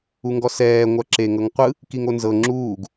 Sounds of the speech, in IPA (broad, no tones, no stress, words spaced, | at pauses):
uŋɡɔsɛː ŋʷaǁe ŋɤŋqʷɯ | kiŋonzɤ ŋ͡ǁuːɡ